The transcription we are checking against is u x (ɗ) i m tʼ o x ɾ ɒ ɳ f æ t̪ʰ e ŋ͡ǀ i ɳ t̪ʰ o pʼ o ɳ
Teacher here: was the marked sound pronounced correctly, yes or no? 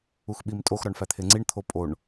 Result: no